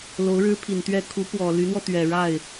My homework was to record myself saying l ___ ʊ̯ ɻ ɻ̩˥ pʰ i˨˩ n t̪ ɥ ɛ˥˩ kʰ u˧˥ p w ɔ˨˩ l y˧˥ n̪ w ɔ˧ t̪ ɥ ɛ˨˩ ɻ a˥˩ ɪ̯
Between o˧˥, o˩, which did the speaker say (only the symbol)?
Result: o˧˥